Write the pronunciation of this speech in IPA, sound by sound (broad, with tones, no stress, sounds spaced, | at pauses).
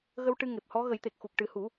ɣ ə˧ w ʈ ɨ˧ ŋ e˨˩ p̚ h ɔ˧˥ ɣ ə˨˩˦ j t̪ e˨˩ k̚ x u˨˩ k̚ ʈ ɨ˨˩ h u˨˩˦